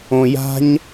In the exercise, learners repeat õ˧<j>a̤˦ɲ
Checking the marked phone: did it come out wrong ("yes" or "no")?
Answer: no